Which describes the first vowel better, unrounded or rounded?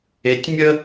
unrounded